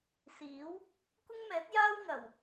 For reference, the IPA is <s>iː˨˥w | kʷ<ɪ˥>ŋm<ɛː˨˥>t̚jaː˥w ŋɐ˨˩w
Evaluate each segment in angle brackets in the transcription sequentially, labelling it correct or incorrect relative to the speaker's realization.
correct, correct, correct

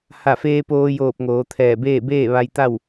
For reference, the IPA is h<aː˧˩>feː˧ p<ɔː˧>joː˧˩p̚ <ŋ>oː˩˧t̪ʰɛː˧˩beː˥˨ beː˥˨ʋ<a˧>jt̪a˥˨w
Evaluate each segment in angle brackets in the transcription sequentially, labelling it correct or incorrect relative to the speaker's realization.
incorrect: a˧˩, incorrect: oː˧, correct, correct

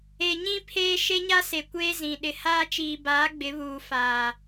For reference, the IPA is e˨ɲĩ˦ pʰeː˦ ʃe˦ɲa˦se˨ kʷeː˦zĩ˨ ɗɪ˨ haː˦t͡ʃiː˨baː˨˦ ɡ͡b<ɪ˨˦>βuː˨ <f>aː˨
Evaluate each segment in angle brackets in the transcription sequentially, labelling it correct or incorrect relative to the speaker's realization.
correct, correct

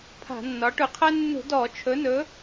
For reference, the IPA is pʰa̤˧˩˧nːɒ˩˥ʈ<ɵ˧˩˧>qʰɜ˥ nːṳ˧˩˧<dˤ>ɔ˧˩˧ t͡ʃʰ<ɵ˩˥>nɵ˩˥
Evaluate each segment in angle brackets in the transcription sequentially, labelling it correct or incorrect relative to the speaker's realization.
correct, incorrect: d, correct

